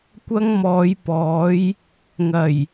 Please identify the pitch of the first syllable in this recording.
high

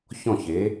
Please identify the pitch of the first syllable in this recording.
falling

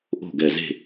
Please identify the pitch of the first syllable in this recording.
falling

